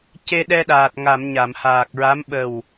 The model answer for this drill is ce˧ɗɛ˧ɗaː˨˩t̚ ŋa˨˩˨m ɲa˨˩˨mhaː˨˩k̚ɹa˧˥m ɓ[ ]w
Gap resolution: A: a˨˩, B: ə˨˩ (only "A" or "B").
B